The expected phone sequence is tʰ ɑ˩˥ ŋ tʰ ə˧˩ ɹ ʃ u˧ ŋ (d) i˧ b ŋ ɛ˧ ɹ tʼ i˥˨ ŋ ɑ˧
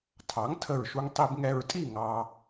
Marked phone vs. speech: incorrect: tˤ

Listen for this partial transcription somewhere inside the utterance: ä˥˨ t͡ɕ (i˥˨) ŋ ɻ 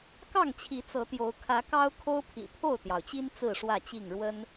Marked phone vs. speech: correct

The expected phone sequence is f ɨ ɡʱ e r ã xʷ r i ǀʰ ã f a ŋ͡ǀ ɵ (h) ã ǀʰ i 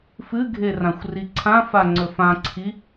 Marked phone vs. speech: incorrect: f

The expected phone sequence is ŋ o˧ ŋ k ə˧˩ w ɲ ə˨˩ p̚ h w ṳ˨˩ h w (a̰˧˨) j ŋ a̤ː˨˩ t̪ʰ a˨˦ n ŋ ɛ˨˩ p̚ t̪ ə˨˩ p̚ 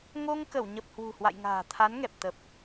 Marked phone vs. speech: correct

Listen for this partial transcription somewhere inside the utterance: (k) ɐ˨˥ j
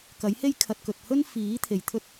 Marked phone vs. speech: correct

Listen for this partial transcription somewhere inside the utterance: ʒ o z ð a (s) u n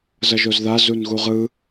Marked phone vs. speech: incorrect: z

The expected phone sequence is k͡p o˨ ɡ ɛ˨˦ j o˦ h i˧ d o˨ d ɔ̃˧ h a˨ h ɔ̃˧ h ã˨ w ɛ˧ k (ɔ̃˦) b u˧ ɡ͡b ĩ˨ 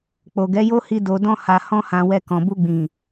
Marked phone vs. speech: incorrect: ɔ̃˨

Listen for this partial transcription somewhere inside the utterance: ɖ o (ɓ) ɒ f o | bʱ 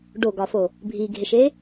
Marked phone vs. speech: incorrect: ɡ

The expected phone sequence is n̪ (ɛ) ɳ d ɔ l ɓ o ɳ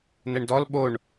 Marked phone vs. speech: correct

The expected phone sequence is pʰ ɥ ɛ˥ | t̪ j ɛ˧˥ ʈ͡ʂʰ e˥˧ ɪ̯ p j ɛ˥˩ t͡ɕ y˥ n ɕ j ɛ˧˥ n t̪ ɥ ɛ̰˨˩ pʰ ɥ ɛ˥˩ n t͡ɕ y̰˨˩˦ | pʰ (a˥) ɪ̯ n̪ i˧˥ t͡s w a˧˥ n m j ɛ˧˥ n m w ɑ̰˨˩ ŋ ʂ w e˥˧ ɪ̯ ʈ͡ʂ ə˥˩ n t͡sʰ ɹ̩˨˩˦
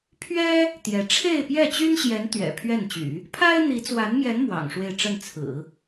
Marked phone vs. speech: correct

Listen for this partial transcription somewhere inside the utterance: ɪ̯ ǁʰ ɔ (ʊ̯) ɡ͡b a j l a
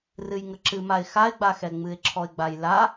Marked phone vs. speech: incorrect: ɪ̯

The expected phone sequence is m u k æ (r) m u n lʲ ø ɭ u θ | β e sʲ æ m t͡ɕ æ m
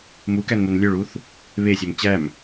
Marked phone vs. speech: incorrect: n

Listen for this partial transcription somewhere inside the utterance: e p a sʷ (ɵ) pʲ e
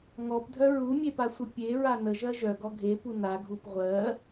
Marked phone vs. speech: incorrect: ə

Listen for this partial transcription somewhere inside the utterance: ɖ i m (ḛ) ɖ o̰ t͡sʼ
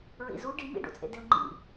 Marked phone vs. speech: incorrect: ḭ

